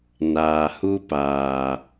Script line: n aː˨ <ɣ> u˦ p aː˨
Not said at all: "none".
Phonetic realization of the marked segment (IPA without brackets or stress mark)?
h